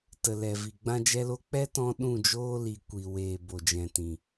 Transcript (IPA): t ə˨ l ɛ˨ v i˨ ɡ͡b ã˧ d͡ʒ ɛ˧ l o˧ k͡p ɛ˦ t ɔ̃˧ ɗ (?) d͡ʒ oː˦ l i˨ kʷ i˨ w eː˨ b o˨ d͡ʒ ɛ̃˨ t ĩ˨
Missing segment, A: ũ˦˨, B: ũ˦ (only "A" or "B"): A